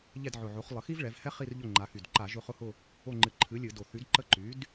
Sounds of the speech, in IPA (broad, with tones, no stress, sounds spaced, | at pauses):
ʎ ɛ˦˨ d ʕ ʊ˨˩ ʕ o˩˥ χ lˠ ə˩˧ x i˦ v ɭ ɛ˩˧ v h ɛ˦ χ i˦˨ r ʎ ʊ˦˨ ŋ͡ǃ a˩˧ x y˨˩ d ǃ a˧˩˧ ʒ ʊ˦˨ χ ʊ˦˨ h ʊ˦˨ | o˦˨ ŋ͡ǃ ɨ˩˥ ǃʰ ɨ˩˥ lʲ ɨ˧˩˧ d o˨˩ θ y˩˥ d ǃ ə˦˨ ǃ y˩˥ d